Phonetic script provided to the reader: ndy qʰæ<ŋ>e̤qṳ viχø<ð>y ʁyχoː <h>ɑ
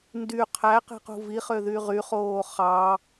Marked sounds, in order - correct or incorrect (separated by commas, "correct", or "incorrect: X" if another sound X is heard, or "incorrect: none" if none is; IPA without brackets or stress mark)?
incorrect: q, correct, incorrect: χ